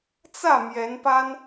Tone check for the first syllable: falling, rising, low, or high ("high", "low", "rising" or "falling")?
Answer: falling